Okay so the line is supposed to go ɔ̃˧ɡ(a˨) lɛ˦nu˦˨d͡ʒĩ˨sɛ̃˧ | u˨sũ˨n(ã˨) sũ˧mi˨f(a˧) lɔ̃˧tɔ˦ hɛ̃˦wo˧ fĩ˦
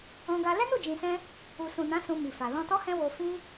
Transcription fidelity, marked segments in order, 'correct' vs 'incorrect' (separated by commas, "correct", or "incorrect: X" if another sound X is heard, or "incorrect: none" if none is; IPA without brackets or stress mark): incorrect: a˧, incorrect: ã˨˦, incorrect: a˨